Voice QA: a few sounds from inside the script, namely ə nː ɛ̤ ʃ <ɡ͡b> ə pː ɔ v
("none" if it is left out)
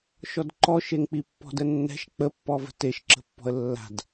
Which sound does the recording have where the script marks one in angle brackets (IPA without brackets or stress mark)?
k͡p